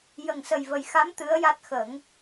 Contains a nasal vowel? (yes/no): no